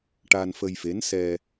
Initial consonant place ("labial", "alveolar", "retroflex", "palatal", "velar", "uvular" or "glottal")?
retroflex